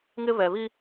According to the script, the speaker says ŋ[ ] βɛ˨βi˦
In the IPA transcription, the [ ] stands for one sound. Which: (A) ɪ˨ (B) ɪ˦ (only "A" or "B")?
B